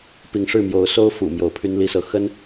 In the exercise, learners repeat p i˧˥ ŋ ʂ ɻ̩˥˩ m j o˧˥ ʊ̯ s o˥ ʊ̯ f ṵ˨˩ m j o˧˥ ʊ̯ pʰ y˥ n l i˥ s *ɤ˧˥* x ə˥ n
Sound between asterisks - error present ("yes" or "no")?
no